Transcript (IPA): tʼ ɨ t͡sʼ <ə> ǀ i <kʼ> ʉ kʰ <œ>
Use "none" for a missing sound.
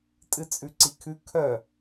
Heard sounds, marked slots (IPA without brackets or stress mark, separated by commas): ʉ, kʰ, œ